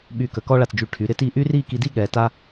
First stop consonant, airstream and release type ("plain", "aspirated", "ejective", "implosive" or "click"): implosive